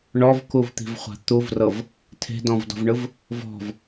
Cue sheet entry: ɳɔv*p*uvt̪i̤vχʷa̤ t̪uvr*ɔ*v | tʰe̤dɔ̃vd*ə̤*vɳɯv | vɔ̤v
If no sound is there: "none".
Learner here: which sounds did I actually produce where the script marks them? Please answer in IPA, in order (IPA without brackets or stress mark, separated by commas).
k, ɤ, ɔ̤